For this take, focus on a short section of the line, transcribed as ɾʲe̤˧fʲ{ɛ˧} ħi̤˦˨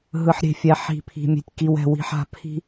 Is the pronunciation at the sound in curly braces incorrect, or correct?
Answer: correct